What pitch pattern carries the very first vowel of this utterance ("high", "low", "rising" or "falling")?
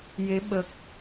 rising